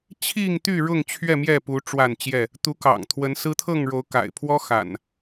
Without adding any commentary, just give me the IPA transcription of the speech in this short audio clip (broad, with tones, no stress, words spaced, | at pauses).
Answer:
t͡ɕʰi˥˨ŋt̪y˥˨ ɻʊ˥˨ŋt͡ɕʰɥɛ˥˨mjɛ˥˨pu˨˦ ʈ͡ʂwa˥˨nt͡ɕjɛ˥˨ | t̪u˨˦kɑ̰˨˩ŋt̪ʰwə˨˦n sɹ̩˦ t̪ʰɤ˥˨ŋɻo˨˦ʊ̯ka̰˨˩ɪ̯ pʰwɔ˦xa̰˨˩n